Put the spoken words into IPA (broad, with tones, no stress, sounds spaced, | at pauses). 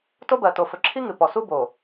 t o˦ b ɜ˨ t o˨ f ɵ˨ ǁʰ i˦ ŋ ɨ˨ p ɔ˨ s u˦ b o˨